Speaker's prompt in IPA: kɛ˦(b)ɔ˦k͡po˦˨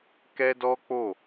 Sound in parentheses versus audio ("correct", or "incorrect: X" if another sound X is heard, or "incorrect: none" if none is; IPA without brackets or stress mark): incorrect: d